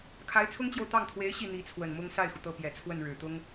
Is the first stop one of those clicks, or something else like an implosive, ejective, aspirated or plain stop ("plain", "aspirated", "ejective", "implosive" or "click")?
aspirated